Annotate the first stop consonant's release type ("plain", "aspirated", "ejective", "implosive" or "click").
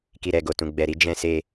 plain